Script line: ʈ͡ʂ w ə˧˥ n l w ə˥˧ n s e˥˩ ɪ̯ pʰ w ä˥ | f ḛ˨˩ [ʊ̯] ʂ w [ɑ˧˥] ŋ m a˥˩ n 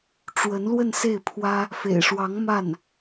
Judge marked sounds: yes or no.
no, yes

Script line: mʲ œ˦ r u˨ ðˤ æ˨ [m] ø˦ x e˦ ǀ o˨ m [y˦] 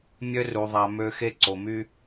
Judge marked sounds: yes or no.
yes, yes

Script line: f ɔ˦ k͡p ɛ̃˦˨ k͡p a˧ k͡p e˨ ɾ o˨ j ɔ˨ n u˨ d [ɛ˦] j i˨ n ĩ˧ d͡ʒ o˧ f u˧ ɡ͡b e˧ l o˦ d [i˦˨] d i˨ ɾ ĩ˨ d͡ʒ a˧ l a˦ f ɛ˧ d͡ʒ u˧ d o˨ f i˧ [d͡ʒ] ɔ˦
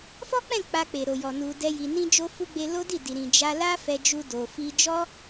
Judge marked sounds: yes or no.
no, yes, yes

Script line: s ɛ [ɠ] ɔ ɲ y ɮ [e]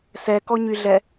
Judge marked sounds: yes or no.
no, no

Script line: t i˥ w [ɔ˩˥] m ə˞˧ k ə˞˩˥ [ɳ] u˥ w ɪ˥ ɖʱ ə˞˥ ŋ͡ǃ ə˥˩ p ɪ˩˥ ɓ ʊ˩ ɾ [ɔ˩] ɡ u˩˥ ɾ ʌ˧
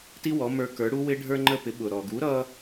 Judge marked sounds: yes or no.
yes, no, yes

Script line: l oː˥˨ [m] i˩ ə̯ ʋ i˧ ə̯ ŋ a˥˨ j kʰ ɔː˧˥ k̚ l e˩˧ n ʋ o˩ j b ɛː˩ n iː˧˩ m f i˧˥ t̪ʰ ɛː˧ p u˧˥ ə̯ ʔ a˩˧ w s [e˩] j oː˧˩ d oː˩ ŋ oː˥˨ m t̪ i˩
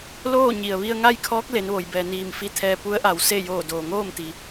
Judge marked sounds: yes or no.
no, no

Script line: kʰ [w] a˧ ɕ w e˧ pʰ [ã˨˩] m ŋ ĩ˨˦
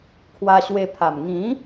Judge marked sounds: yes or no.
yes, no

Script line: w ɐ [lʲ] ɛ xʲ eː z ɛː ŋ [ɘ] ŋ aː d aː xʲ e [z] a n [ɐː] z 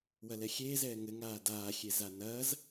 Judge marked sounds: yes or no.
no, yes, yes, yes

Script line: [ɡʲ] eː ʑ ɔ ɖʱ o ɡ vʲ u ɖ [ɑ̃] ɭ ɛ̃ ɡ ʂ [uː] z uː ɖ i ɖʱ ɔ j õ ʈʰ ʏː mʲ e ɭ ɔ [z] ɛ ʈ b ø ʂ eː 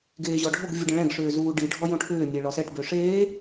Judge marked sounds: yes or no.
no, no, no, no

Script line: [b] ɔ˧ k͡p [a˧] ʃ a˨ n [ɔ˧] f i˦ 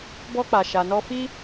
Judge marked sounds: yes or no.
yes, no, yes

